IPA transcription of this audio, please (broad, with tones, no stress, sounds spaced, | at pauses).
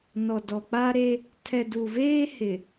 n ɔ˨ d ɔ˨ k͡p a˦ ɾ e˦ | tʰ ɛ˨ d u˨ v eː˦ h ɪ˨